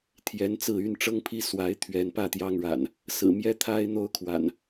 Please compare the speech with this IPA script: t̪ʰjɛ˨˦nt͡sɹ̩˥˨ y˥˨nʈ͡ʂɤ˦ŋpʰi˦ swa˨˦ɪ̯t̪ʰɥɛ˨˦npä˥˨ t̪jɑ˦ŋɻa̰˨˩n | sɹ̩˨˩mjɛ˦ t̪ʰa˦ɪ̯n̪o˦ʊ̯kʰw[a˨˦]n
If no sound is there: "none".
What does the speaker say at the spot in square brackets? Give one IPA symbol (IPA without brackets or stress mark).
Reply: a̰˨˩